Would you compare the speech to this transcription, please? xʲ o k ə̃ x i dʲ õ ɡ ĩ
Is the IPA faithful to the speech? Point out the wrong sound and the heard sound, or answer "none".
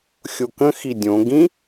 none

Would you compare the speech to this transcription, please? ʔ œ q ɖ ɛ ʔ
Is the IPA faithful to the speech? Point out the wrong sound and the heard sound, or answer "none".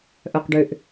ɛ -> ʏ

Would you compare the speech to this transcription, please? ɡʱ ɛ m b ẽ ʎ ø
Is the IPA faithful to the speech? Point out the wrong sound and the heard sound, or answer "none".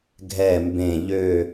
none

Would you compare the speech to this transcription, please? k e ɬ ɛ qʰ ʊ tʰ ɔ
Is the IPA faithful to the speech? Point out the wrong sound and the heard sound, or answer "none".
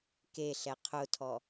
none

